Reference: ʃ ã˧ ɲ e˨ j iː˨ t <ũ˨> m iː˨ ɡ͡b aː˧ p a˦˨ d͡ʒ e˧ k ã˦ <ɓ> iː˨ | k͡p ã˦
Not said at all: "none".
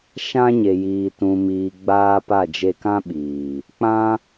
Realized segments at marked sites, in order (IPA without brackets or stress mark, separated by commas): ũ˨, ɓ